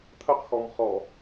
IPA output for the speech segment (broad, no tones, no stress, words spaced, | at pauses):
t̪ʰəqxɔmχɔ